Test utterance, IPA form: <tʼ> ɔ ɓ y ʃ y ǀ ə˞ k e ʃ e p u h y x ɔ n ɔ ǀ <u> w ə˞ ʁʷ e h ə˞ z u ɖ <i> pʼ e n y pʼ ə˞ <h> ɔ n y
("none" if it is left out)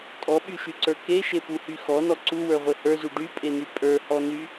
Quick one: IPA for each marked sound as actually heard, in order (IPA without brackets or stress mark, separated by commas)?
tʼ, u, y, h